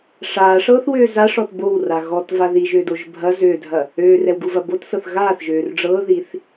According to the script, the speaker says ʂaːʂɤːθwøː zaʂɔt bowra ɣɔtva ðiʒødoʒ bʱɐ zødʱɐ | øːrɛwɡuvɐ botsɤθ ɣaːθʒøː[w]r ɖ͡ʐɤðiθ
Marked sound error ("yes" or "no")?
yes